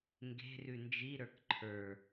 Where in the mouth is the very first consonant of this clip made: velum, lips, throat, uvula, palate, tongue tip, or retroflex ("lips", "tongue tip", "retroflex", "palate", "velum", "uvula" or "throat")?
velum